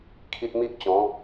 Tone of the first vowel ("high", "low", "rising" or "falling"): high